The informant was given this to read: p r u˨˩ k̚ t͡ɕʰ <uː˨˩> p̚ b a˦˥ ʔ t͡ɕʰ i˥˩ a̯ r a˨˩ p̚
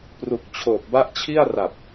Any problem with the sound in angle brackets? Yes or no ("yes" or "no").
yes